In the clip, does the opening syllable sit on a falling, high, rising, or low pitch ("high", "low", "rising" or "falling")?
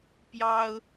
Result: high